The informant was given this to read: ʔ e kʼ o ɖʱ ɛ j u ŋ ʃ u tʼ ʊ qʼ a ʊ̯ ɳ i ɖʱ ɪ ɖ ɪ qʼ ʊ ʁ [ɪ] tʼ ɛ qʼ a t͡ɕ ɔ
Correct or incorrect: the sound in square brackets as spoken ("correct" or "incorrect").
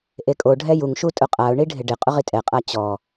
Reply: incorrect